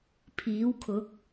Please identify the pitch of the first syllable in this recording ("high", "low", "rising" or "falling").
rising